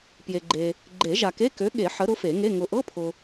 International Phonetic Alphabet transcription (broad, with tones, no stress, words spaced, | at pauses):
pje˨ɡ͡ǃe˨ | ɡ͡ǃe˨˩˦ ʒa˨ke˧˥˧kø˨˥ ɠe˨˩˦ ħə˨˥ɾʊ˨˥fe˨˩˦ŋe˧˥˧ ŋʊ˨ʔɤ˧˥˧pʰʊ˨